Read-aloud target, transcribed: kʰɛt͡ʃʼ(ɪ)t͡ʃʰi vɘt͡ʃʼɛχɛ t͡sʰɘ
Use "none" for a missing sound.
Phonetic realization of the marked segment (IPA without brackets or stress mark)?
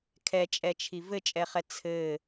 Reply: ɛ